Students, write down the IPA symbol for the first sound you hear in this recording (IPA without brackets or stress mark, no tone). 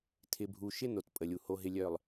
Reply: tʰ